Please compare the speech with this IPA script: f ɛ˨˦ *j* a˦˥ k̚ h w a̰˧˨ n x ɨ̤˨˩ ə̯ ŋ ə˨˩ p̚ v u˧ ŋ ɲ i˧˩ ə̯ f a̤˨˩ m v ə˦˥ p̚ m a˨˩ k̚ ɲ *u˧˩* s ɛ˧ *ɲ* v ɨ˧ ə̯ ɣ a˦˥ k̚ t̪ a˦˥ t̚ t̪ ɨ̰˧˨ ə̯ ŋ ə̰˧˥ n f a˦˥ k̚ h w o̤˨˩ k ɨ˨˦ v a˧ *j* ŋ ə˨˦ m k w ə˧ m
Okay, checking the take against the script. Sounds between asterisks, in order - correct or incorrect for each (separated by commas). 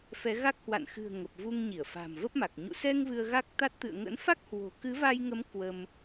incorrect, incorrect, incorrect, correct